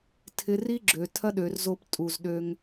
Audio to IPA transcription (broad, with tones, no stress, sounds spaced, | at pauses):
tʰ ɪ˧ r i˦ ɡ͡ǁ ø˨ tʰ ɐ˦ ɗ ø˨ r z o˧ p tʼ u˨ z ɗ ø˧ ŋ